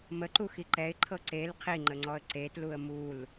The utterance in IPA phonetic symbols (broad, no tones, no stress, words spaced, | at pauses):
məǃuxi ǃɛɪ̯ǃʰɤ ǀel qʰiŋ͡ǃəŋ͡ǀɔə̯ ǀetluə̯ mul